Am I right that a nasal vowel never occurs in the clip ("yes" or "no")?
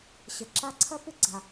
yes